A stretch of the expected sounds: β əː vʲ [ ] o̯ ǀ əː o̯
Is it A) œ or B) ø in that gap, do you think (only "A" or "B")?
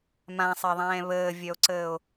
A